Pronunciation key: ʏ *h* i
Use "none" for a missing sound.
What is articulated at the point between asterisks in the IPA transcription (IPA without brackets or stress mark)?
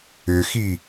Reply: x